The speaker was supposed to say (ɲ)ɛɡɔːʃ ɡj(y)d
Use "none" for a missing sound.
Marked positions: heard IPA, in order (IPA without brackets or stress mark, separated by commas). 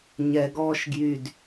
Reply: ɲ, y